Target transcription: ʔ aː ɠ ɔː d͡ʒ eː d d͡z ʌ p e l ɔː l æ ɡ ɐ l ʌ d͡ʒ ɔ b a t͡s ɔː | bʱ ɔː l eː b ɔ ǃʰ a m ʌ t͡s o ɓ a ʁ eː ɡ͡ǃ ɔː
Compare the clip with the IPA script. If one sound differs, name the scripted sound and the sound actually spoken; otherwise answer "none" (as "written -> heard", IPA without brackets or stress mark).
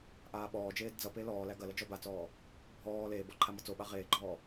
ɠ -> ɓ